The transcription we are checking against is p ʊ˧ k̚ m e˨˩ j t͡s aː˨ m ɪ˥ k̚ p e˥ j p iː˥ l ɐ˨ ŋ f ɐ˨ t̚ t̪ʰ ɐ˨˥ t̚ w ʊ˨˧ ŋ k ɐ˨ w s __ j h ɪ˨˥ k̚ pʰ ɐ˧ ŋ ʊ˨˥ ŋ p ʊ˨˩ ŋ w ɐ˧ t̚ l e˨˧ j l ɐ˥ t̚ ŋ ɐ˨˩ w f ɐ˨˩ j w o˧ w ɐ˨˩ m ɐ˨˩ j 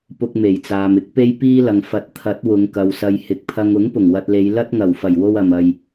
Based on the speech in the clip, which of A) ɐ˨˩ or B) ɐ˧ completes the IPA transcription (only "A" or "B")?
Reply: B